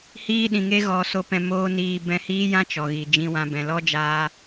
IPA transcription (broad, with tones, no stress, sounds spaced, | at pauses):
h iː˦ ɗ ĩ˨ ŋ e˦ ɣ ɔ˨ s o˧ p ɛ̃˧ m oː˦ n iː˧ b ɛ̃˧ h iː˦ j ã˦ t͡ʃ ɔ˨ ɣ i˨ d͡ʒ ĩ˧ w ã˧ b ɛ̃˨ l ɔ˦ d͡ʒ aː˧